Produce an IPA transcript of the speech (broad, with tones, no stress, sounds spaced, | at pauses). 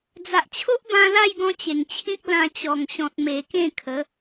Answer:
d͡z a˨ ʔ t͡ɕʰ o˦ ʔ b ã˧ l a˥˧ j ɡ ɔ̃˧ t͡ɕ e˨˩ ŋ t͡ɕʰ ĩ˦ k̚ l ã˧ t͡ɕ ɔ˨˩ ŋ ɕ ɔ̃˨ t̚ m e˨˩ k ẽ˥˧ kʰ ə˨˦